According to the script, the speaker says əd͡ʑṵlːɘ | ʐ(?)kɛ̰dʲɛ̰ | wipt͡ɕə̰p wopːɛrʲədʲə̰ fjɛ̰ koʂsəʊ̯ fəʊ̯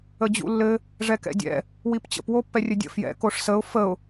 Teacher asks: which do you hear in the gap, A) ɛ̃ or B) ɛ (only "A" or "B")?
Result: B